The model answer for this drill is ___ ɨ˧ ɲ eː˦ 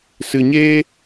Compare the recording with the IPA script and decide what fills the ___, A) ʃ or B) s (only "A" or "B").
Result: B